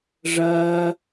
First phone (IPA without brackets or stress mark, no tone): ʐ